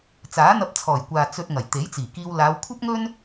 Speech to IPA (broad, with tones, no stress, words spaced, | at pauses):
t͡saː˨˥n̪ɐ˧p̚t͡sʰɔː˨˩jkʷaː˨ t͡sɵ˧t̚ ŋɐ˨˩jt̪e˨˥jt͡siː˨˩kiː˧w laː˨˧w kʷʰɐ˥p̚ŋɵ˥n